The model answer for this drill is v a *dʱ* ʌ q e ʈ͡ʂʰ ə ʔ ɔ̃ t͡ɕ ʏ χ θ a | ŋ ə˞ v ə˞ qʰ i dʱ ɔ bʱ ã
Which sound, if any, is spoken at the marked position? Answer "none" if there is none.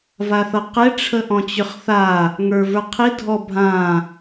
θ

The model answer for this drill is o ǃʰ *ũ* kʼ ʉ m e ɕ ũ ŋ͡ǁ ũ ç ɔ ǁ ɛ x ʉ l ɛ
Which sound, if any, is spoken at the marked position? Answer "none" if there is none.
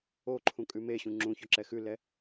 ũ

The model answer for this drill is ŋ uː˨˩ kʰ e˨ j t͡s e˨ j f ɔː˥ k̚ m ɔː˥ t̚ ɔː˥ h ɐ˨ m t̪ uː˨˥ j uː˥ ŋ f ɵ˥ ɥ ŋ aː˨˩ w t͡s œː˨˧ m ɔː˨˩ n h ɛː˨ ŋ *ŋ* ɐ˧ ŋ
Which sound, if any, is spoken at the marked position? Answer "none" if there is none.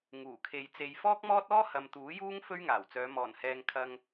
kʰ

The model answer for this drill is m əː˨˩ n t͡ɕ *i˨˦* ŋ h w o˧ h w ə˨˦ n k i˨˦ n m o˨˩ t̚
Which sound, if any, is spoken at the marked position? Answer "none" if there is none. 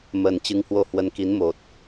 ɨ˨˦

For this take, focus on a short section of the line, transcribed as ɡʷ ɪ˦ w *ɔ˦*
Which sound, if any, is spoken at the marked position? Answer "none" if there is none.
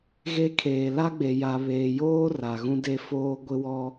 ɔ˦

